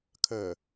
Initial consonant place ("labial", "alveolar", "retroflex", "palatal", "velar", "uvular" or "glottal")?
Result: velar